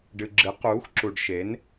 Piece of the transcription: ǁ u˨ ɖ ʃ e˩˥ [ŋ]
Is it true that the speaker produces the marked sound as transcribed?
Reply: no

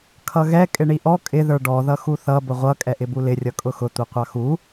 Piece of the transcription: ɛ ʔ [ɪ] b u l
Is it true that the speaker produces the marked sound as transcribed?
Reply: yes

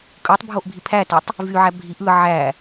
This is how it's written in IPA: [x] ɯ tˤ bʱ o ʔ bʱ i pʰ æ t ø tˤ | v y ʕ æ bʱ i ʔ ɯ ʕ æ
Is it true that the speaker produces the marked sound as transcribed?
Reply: no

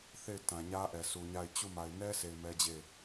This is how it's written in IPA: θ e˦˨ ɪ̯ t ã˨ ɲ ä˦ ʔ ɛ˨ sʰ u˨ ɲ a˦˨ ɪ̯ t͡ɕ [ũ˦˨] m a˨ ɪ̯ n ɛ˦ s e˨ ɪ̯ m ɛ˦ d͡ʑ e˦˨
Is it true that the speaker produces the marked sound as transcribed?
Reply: no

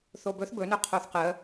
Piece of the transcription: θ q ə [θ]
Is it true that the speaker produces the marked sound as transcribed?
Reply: no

